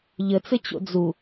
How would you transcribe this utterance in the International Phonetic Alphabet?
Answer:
ʎ ə t͡s ɘ t͡ɕ o̰ d͡z u

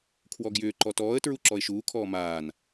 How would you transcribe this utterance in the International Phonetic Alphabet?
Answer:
kʰ w ɔ ɡ j ʏː ǃ ɔ t ɔː ə̯ t ɹ u ǁ ɔ ɪ̯ ʃ uː kʰ ɔː m aː n

